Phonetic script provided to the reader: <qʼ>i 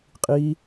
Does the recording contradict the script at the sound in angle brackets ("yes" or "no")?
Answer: no